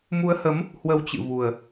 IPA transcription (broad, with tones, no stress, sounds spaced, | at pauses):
m u˨˦ ə̯ h ə˨˦ m | h w ə˧ w t͡ɕ ɨ̰˧˨ v u˨˩ ə̯